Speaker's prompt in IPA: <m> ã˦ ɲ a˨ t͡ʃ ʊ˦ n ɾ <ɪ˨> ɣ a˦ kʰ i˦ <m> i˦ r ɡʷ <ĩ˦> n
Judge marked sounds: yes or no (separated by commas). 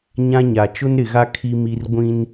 no, yes, yes, yes